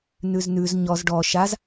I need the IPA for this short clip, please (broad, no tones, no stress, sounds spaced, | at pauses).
n ʉ z n ʉ z ɲ ɔ z ɖ ɔ ʃ a z